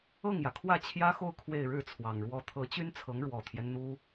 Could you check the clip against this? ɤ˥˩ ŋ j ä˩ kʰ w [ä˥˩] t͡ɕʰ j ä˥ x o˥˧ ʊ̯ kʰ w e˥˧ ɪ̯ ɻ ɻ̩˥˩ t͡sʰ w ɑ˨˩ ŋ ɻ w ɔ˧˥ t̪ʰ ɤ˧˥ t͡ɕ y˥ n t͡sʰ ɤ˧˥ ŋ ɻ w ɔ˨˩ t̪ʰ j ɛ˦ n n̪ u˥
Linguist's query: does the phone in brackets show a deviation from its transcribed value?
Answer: no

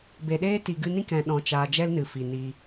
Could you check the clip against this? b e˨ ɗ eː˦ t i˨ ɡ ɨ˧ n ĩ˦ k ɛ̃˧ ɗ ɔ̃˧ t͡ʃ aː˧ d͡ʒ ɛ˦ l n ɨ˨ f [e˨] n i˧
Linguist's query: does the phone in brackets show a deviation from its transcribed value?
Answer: yes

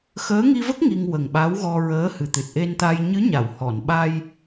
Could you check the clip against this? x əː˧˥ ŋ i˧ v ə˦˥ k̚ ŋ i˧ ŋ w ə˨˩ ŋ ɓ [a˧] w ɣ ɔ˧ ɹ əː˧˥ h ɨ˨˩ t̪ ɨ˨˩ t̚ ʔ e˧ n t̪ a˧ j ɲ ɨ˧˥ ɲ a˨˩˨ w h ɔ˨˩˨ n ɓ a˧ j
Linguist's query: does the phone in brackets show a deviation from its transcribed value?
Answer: yes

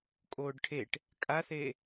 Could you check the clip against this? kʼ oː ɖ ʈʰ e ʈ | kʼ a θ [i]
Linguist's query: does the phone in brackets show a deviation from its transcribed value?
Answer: yes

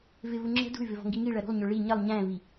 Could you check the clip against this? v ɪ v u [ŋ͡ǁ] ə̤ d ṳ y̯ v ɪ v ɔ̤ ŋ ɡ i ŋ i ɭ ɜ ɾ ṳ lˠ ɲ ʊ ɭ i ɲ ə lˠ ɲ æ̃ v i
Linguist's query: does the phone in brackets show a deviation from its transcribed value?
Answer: no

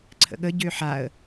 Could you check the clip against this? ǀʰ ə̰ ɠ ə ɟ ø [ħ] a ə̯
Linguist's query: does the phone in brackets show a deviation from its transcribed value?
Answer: no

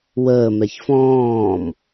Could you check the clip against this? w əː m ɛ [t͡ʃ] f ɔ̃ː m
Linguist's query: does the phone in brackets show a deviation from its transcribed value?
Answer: yes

